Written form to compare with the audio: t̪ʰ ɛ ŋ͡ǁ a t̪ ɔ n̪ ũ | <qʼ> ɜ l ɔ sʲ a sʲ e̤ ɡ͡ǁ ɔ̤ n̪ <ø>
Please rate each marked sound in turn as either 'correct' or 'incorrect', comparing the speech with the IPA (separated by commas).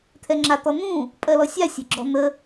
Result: incorrect, incorrect